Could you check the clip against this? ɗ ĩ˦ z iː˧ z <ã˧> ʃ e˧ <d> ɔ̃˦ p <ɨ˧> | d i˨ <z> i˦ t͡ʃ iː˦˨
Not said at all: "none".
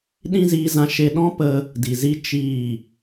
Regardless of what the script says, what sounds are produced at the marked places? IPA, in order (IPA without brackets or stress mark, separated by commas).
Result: ã˧, ɗ, ə˧, z